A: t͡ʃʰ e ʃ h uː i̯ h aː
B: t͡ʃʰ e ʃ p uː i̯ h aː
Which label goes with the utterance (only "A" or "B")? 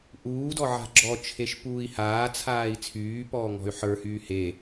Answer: B